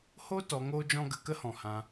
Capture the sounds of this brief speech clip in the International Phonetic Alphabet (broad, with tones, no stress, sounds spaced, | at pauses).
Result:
h o˦ t ɔ˨˦ ŋ oː˦ d͡ʒ ɔ̃˦ ɡ ə˧ k ə˦ h ɔ̃˨ h ã˧